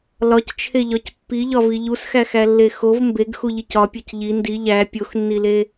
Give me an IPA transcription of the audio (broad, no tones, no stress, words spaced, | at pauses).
lɒct͡ʃʰeʎɒc pːiʎɒvi ʎusxæxælːe xov mbeɡxuʎic ɒpʲɒc ʎi ndi ʎæ pʲoxnːile